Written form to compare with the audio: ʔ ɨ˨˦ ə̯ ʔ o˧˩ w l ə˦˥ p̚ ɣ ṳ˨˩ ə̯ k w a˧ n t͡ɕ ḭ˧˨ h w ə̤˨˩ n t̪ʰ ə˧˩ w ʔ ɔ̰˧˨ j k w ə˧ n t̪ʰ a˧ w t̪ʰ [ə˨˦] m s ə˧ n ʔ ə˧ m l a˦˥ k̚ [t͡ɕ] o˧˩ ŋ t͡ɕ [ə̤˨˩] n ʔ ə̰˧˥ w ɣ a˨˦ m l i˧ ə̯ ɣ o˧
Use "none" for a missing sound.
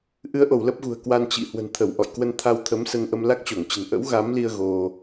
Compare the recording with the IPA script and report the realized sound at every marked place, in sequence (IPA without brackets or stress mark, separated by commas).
ə˨˦, t͡ɕ, ə̤˨˩